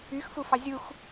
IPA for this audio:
yxfufɑ zʲux

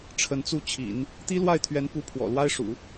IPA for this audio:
ʈ͡ʂʰə˧˥nt͡su˥˩t͡ɕʰḭ˨˩˦n | t̪i˥lwa˥˩ɪ̯t̪ʰɥɛ˧˥npu˧˥ pʰwɔ̰˨˩lwa˥ɪ̯ʂṵ˨˩˦

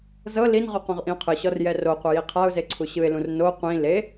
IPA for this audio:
zɤ linʁu qõʁʔĩʊ̯qʰɯɕɔr jɛroqʷɛ jiqʰaʊ̯ze ǀʰuɕɯɪ̯lũr no qʷĩ le

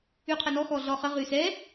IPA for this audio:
yqʰənɔ xɔɮɔχə ʁysɛ

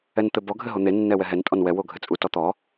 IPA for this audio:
ɛnt̪ɘbɔ ɡʱɘɦon̪e nːɛwɛɦɛn tʼɔnwɛ woɡʱɘt͡sʼu tɔt̪ɔ

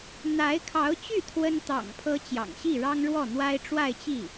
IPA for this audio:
n̪a˧˥ɪ̯kʰɑ˧˥ʊ̯t͡ɕy˥˩ t̪ʰwə˥n t̪ɑ̰˨˩ŋpʰɤ˧˥ t͡ɕjɑ̰˨˩ŋɕi˥˩ɻɑ˥ŋ ɻwɔ˥˩n̪wa˥ɪ̯ ʈ͡ʂwa˥˧ɪ̯t͡ɕi˥˩

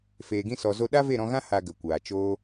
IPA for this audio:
feː˨ɡĩ˧sɔ˨zo˧ ɗa˦ve˦˨ɾɔ̃˧ɣã˦ ha˧ ɡə˨kʷaː˨ t͡ʃoː˦

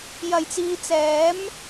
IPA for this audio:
jɐ˨˩jt͡siː˨t͡sɛː˨˥m

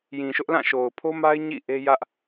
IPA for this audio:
jĩ˨ ʃʊ˦ʔlã˦˨ʃo˨ʊ̯ pʰo˦ma˦ɪ̯ ɲḭ˦˨ʔe˦jä˦ʔ

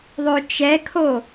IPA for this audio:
ðˤøt͡ʃɛkʰo

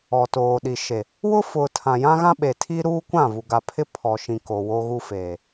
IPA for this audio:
ɔ˨toː˨ɗi˨ ʃe˨ | wʊ˦fʊ˨ tʰã˨jã˦ɣã˦ɓe˨ tʰi˦ɾuː˦kʷã˦˨ vu˨ɡa˨pʰɪ˦ pʰɔ˨ʃĩ˨ ko˨wo˦ɣu˦feː˨

